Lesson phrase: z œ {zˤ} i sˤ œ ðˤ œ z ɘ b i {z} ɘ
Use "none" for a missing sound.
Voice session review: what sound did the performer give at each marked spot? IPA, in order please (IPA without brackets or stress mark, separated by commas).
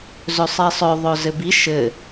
sˤ, ʃ